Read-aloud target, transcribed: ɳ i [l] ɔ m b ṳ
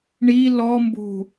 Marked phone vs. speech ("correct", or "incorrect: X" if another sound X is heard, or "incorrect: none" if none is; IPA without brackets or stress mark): correct